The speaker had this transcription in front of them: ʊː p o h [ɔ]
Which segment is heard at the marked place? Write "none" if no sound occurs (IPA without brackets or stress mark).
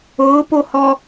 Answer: ɔ